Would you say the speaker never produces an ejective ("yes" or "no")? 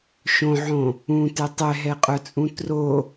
no